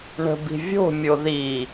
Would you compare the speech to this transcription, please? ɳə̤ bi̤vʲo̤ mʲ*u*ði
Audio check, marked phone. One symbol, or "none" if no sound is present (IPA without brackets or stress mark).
o